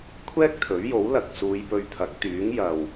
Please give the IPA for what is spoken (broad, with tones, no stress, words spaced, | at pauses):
kʷʰɛː˥k̚t̪ʰɵ˨˥ɥjo˨˥wlɐ˨k̚ suː˨˧jpɵ˧ɥt̪ʰɐ˨˥k̚ t̪yː˨˥ŋjɐ˨w